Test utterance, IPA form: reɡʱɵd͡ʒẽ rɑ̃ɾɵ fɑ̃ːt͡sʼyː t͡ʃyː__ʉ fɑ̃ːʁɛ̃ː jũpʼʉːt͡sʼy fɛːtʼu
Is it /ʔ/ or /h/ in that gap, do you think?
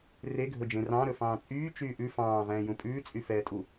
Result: ʔ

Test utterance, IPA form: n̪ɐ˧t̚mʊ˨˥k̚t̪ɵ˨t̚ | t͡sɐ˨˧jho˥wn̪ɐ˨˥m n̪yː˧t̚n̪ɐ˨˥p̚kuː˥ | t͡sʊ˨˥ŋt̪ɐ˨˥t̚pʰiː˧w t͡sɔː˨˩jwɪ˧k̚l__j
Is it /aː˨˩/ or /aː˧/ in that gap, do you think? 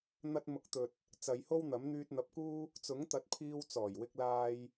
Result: aː˧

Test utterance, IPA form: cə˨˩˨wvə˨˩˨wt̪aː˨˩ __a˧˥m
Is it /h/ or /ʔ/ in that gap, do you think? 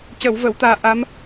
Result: ʔ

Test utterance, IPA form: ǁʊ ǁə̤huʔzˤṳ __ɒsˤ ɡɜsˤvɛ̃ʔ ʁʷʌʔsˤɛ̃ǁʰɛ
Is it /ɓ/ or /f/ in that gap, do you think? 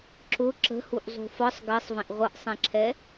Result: f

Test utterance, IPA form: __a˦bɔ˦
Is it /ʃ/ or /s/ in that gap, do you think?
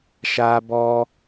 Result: ʃ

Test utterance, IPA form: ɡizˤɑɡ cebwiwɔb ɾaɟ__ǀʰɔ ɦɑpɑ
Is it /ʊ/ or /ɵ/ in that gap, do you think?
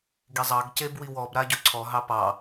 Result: ɵ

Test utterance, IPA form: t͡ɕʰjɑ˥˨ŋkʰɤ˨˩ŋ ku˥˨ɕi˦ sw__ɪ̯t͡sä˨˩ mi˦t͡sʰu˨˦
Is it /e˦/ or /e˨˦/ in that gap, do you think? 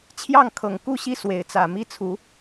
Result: e˨˦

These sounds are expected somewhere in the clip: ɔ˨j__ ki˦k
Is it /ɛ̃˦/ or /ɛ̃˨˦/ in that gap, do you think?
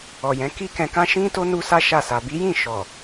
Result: ɛ̃˨˦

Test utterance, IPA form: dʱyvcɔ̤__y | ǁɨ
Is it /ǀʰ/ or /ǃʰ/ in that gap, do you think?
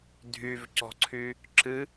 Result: ǀʰ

